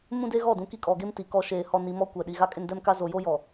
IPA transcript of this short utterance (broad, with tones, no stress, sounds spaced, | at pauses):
m ũ˦ d e˦ ɣ ɔ˦˨ d ũ˨ k i˦ kʼ ɔ˨ ɡ e˦ m t i˨ k ɔ˦ ʃ eː˨ h ɔ˨ n i˨ m ɔ˦ kʷ ɛ˨ ɗ i˨ ɣ a˦ kʼ ɪ˦ n d ɛ˦ m k a˦ z o˨ j o˦ j ɔ˨